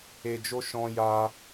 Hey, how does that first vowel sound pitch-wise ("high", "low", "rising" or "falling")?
low